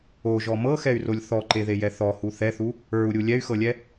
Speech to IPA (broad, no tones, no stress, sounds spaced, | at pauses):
o ʒ ɔ m ɤ x ɛ y̯ r o lʲ θ ɔ ǃ e ð e j ɛ θ ɔ h u θ ɛ θ u | ə˞ u̯ ɾʲ u lʲ ɛ y̯ x ɤ lʲ ɛ